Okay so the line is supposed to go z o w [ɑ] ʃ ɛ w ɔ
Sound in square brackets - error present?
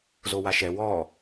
yes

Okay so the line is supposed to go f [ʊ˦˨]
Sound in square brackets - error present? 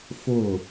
no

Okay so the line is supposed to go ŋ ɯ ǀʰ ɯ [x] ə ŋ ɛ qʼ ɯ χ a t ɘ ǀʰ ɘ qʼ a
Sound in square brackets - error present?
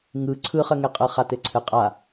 yes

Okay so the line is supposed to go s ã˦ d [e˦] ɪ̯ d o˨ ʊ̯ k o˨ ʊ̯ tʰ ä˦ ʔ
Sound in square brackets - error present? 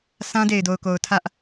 yes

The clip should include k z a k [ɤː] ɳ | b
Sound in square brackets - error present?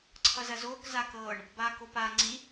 no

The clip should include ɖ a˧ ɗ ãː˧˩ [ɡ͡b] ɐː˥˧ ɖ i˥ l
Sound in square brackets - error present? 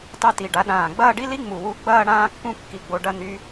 no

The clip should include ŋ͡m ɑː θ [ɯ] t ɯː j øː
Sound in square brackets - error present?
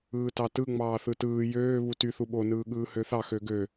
no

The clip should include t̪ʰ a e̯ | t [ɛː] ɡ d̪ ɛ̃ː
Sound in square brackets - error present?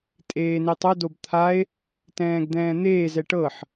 yes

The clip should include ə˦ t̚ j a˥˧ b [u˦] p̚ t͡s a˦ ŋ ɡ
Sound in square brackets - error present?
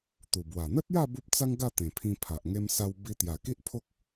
no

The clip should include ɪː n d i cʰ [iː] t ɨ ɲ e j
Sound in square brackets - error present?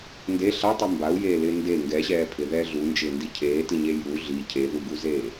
yes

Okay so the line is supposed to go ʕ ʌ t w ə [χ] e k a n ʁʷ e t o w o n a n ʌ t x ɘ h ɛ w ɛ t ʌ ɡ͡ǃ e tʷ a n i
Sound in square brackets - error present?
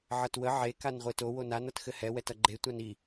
yes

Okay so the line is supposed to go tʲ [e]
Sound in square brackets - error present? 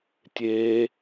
no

